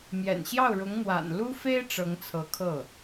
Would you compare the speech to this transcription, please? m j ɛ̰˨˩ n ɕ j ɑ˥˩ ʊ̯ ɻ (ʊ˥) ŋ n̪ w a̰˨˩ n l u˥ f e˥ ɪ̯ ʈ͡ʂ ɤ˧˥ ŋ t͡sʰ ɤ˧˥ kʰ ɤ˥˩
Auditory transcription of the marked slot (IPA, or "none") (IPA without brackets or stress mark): ʊ˧˥